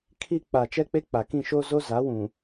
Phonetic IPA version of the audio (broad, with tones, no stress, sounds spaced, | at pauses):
kʰ iː˦ k͡p a˨ t͡ʃ ɛ˦ k͡p e˦ k͡p a˨ k ĩ˦˨ ʃ o˦ z o˦ z aː˨˦ w ũ˨